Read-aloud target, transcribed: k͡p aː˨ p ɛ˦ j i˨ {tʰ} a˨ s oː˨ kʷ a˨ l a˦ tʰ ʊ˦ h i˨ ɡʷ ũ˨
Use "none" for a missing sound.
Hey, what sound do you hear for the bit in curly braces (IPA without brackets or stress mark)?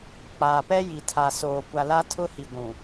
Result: tʰ